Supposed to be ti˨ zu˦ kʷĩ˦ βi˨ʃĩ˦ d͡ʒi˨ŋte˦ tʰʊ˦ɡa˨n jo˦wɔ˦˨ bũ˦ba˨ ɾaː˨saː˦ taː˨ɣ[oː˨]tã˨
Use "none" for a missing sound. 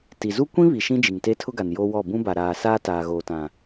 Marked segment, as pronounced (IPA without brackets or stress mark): oː˨